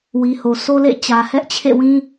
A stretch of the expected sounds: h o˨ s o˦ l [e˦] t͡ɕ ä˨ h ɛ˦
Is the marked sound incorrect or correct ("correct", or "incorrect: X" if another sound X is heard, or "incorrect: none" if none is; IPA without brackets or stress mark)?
incorrect: ḛ˦˨